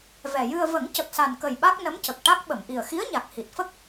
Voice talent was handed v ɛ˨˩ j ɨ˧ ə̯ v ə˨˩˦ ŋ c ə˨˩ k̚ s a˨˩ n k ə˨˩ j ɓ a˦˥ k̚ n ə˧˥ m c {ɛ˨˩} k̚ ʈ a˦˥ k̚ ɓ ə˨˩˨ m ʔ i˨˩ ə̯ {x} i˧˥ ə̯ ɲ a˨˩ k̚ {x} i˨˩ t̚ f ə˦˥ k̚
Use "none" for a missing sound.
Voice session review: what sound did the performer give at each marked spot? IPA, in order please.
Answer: ə˨˩, x, h

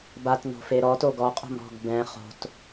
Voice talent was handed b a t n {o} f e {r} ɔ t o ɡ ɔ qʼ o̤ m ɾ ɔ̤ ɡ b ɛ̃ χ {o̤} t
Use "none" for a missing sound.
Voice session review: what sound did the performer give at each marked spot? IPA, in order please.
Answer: o̤, ɾ, o̤

